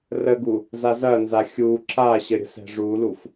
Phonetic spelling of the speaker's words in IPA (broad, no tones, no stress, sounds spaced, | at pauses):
r ə ɡ u | z a z ɐ n z a xʲ u ǁ a ɕ ə ɾʲ ə̤ s ɛ̤ ʐ u l u f